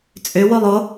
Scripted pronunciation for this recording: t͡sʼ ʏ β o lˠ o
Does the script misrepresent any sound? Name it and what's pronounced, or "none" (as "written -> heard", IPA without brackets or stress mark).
β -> w